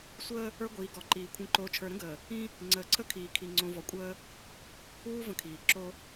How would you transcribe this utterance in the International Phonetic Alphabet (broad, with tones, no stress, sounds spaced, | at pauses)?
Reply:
sʷ əː˦ | ə˞˦ ɡʷ iː˨ ɡ ɔ˨ ǃ iː˨ kʷʰ ĩ˨ ǃ oː˨ t͡ʃʰ ə˞˨ ɾ ə̃˦ ɡ əː˨ | ĩ˦ | ŋ͡ǀ əː˨ ǀʰ ə˦ kʰ iː˨ kʰ i˨ ŋ͡ǀ õ˨ v ɔ˨ kʷʼ əː˦ | uː˦ v ə̃˦ kʰ iː˨ ǁ o˦